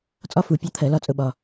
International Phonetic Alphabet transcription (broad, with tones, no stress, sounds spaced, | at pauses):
t͡sʼ ɒ˥ f u˧˩˧ pʲ ɒ˥ t̪ʰ ɜ˧˩˧ l ɒ˥ t͡sʼ ʊ˥ ɓ ɒ˧